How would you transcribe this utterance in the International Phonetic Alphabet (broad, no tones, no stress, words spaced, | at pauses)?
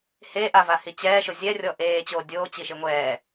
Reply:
he ʔavahi t͡ɕɛːʃʊ zʲɛrʲɔ ʔeːt͡ɕoː dʲoːt͡ɕiʃɪ ŋʷɛː